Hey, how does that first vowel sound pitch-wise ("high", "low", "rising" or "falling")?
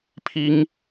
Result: high